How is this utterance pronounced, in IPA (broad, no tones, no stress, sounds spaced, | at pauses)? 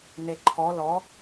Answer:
n e ǃʰ ɔ l ɔ